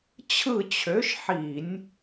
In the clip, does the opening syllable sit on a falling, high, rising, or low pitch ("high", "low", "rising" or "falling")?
falling